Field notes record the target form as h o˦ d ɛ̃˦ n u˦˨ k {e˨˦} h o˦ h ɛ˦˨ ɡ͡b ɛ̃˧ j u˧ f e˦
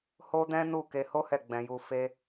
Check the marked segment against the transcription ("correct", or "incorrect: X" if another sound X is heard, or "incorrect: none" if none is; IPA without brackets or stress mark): incorrect: e˧